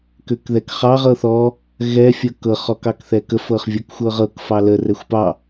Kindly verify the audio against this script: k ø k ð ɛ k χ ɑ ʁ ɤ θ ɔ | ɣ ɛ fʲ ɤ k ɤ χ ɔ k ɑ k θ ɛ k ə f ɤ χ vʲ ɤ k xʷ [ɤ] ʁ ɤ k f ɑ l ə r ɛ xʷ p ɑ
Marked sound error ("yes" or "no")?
no